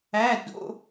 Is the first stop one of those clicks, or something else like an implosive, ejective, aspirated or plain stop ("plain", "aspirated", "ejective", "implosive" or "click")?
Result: plain